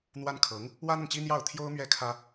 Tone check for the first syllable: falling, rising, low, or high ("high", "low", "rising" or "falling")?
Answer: high